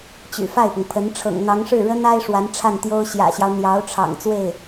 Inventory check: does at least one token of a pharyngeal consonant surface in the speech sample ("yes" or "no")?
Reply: no